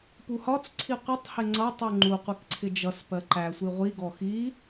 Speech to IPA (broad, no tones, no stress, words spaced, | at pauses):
puhɒt͡sǀʰi qʷɪtˤhɪ ŋ͡ǀʌtˤu ŋ͡ǃuqʷɪk ǀʰɪd͡ʒʌspɜ ǃæsʷi ʁʷiɡɔ xi